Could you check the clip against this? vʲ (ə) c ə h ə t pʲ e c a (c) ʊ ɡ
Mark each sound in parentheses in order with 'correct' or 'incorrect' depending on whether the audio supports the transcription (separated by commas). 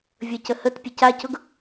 correct, correct